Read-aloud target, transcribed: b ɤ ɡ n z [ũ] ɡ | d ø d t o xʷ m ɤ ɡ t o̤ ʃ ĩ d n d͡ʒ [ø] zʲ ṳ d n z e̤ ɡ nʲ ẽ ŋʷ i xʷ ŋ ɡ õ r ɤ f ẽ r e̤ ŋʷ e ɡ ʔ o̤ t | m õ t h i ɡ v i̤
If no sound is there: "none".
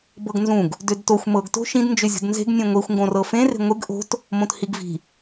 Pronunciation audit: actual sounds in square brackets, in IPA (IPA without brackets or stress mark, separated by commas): ũ, ø